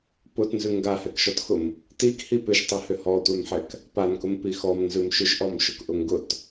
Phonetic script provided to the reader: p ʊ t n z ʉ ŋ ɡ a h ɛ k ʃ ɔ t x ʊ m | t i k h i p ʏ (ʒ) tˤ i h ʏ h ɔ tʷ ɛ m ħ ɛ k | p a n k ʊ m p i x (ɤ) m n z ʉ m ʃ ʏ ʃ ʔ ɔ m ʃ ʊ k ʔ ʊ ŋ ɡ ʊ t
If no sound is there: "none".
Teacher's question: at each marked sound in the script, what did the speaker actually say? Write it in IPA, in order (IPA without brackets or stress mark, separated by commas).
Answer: ʃ, ɔ